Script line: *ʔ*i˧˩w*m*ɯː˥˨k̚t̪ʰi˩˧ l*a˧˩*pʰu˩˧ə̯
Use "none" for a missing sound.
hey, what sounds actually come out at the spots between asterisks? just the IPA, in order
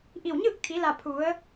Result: ʔ, ɲ, a˧˩

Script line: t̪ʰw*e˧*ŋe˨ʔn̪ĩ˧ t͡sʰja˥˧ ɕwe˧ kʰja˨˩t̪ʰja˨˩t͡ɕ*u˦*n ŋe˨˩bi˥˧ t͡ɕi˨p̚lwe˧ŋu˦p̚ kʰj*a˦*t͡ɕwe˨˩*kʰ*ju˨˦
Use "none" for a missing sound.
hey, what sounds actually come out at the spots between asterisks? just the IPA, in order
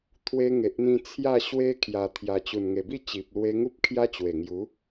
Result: e˧, u˨˩, a˦, ŋ

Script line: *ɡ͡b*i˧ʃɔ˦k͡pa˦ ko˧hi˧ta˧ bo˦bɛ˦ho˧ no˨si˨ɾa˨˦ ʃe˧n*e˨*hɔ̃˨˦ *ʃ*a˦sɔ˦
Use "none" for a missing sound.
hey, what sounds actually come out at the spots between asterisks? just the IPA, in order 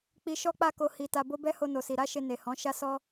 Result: k͡p, e˨, ʃ

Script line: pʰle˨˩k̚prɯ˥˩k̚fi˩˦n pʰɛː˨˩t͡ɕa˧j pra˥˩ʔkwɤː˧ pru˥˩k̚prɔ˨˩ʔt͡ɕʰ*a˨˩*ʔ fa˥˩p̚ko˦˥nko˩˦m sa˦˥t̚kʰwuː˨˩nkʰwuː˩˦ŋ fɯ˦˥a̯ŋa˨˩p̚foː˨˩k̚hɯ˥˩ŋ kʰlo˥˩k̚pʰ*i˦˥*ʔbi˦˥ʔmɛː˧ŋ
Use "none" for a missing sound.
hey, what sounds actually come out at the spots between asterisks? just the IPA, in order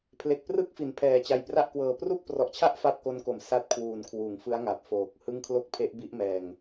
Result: a˥˩, e˦˥

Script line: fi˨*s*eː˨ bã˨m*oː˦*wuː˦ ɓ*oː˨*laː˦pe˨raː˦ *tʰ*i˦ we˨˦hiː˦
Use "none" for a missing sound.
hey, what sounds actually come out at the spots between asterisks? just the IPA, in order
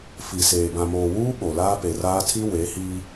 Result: s, oː˨, o˨, tʰ

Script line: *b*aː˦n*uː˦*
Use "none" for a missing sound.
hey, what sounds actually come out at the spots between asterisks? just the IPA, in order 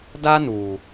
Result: d, uː˨

